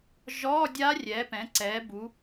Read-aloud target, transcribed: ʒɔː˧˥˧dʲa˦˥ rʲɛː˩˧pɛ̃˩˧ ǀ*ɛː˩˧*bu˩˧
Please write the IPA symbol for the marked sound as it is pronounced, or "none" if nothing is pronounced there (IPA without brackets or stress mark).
ɛː˩˧